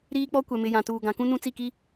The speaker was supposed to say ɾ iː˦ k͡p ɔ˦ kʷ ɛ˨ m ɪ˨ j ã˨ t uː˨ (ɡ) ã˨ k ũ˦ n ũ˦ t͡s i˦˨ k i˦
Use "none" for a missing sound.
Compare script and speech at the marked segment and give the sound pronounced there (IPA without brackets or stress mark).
ɡ